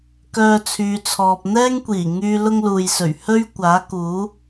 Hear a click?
no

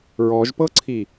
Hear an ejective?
no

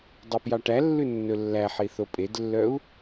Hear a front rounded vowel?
yes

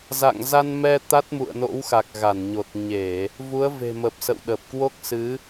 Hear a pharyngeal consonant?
no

